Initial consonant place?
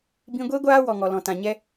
labial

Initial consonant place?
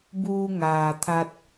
labial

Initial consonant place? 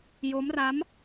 palatal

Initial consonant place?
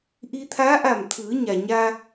glottal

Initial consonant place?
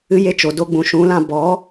palatal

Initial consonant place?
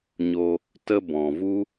palatal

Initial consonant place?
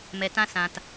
labial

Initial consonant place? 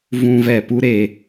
labial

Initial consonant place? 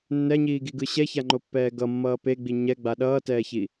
alveolar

